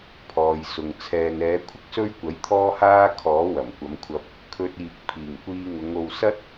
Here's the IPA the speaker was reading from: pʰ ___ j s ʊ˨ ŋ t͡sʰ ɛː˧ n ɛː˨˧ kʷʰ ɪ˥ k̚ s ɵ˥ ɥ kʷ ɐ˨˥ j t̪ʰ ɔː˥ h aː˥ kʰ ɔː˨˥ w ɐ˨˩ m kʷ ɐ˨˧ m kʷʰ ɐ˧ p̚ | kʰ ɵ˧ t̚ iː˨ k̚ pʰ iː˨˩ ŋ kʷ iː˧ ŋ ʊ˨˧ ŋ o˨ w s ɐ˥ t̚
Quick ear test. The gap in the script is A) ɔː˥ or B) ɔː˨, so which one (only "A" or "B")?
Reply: B